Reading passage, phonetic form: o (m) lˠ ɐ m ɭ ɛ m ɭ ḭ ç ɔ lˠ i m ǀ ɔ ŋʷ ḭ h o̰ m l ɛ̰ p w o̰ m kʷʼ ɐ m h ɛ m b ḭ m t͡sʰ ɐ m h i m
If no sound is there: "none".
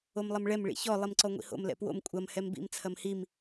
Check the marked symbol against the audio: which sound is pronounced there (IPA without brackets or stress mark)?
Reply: m